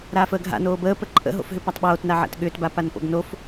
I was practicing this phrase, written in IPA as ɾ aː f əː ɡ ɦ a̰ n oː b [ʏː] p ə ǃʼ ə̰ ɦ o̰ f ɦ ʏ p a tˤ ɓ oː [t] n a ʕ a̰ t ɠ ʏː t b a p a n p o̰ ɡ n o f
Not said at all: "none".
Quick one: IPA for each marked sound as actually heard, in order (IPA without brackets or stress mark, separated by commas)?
əː, t